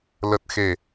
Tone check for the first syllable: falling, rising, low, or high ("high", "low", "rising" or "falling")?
low